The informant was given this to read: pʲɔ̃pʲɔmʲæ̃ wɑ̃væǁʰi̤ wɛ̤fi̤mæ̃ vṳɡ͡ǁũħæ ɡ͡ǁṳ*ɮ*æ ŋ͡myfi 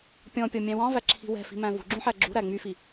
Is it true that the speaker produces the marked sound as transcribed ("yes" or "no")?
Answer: no